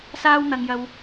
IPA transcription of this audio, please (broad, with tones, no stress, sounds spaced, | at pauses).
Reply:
s aː˥ w n̪ ɐ˧ ŋ j ɐ˧ w